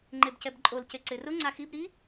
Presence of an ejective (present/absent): present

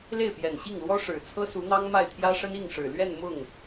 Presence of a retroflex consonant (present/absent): present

